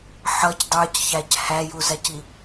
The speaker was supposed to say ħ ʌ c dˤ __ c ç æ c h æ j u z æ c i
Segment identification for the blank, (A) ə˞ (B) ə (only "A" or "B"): A